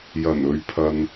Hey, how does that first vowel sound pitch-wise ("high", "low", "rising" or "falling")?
low